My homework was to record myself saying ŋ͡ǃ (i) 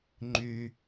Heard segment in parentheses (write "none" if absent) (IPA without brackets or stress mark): y